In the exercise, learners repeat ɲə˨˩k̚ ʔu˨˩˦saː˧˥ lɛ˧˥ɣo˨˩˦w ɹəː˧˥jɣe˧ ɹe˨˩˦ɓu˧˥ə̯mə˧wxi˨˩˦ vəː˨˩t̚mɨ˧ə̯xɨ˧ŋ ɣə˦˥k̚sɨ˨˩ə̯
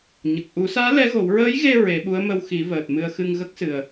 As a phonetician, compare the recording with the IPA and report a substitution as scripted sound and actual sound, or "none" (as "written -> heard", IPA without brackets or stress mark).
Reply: none